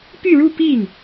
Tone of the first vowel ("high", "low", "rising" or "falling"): falling